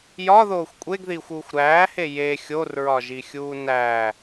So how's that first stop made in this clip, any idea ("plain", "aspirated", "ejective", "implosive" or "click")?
ejective